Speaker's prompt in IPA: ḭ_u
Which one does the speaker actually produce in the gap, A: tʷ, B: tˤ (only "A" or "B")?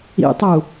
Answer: B